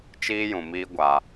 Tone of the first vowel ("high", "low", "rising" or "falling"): high